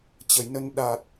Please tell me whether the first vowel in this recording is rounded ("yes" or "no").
no